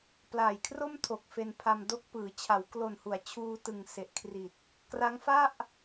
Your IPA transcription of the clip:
p l aː˨˩ j kʰ r o˥˩ m tʰ o˨˩ k̚ f e˧ n pʰ a˧ m d o˦˥ k̚ p ɯː˩˦ t͡ɕʰ a˩˦ w k l o˨˩ n h u˩˦ a̯ t͡ɕʰ uː˧ t ɯ˨˩ ŋ s e˨˩ ʔ kʰ r i˨˩ t̚ | k r a˦˥ ŋ f a˥˩ ʔ

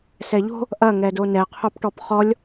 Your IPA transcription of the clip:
s ɛ ʎ o̤ | ʔ ɐ ŋ ɛ d o n ɛ qʰ o p ʈ ɔ p χ ɔ lʲ

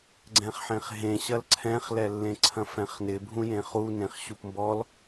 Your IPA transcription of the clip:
ɡ͡ǀ ɛ̃ χ ħ ẽ χ ɦ ẽ ɕ ɐ l ǀʰ ɛ̃ χ l ɛ lː ẽ ǀʰ ɐ̃ f ɛ̃ χ n ɪ bʱ ũ j ẽ χ u n ẽ χ ɕ u p m b ɔ l

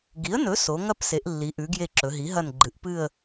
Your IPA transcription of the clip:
ɡ i˩˥ ə̯ n ɵ˩˥ s o˩˧ ŋ ɐ˦˨ p s e˩˧ ʔ lː i˩˧ ʔ ʉ˩˧ ɡ j e˦˨ ǁ ɵ˩˧ ɦ i˩˥ ɦ ɐ˦˨ n ɡ͡ǃ ɨ˩˧ ʔ p ɨ˦˨ ə̯

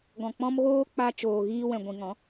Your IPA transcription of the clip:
ɡ ɔ̃˨ k͡p ɔ̃˦ m ɣ oː˦ k͡p a˧ t͡ʃ oː˨ ɣ iː˧ w ɛ̃˨ ɡʷ ĩ˨ ŋ ɔ̃˨˦

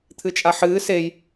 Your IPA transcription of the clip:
t̪ʰ ɨ t͡ʃʼ a ħ ɨː s e j

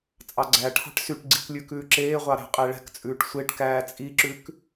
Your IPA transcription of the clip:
t͡sʼ ɑ ɡ͡ǀ æ ʈʰ ɑ̤ ʈ s y ʈ ɡ͡ǀ i k lʲ ʉ k ʉː ǁ eː ʁʷ ɑ ɾ æ̤ qʼ ɛ ɭ ɛ̤ k t͡sʼ ʉː ʈ sʷ e ʈ k æː t͡sʼ i ǁ ʉ k

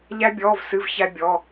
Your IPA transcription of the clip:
ʎ æ˥ bʲ ɔː˧˥˧ v s ɨ˧˥˧ v ç æ˥ bʲ ɔ˧˥˧

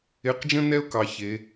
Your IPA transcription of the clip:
e˧˥ q d͡ʒ ə̃˥ n ɛ˥ ʊ̯ k ɑ˧ ç e˧˥

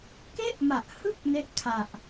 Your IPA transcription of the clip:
k e˥˩ ʔ m a˨˩ ʔ h ɯ˥˩ k̚ n e˦˥ ʔ kʰ a˨˩ ʔ

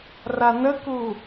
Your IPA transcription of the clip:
r a n ə k u

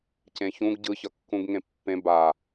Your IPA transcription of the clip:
c ẽ ç ũ ɡ ɟ ɯ ç ʌ kː ũ ɡ ŋ ẽ pː ẽ b a

